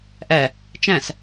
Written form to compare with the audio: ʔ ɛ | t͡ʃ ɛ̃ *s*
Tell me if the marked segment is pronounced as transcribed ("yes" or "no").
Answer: yes